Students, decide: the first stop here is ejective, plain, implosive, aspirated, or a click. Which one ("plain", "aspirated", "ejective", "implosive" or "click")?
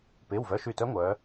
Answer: plain